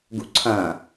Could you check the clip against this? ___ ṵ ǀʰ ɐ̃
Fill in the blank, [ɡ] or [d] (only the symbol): ɡ